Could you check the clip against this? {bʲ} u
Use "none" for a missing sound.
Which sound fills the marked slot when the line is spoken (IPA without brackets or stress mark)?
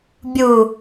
bʲ